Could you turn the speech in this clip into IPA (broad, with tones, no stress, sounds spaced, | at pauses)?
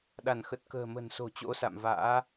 ɗ a˧˩ n x ə˨˩ t̚ k ə̤ː˨˩ m ə̤˨˩ n s o̤˨˩ t͡ɕ o̰˧˥ s a̰˧˨ m v a̰ː˧˥